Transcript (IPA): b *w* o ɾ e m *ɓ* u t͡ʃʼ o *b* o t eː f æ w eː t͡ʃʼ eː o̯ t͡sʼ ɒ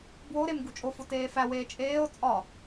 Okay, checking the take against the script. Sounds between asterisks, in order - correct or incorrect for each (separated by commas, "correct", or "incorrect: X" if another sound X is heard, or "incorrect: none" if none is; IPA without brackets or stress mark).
correct, incorrect: ɡ, incorrect: f